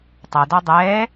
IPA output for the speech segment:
tˤ ɐ d ɔ dˤ ɛː

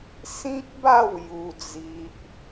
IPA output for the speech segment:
s ĩ˦ k̚ b a˥˧ w j u˦ d͡z i˦ ʔ

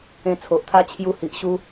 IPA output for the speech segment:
ẽ˧ t͡sʰ o˨ ʔ t̪ʰ a˦ t͡ɕʰ j u˧ h i˨ ʔ ɕ u˦

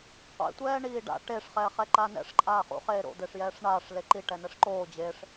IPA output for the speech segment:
qʷ ḛ tʷ ɛː ɳ iː ɖ a̰ ʈ e ʂ χ ɛː χ ɛ ǃ aː n ɛ̰ ʂ ǃʼ aː χ ṵ χ eː ɾ o̰ d̪ e ʂ j ɛː ʂ ɳ aː ʂ l e ǃ i ʈ ɛ n ɛ ʂ ǃ oː d͡ʑ e ʂ

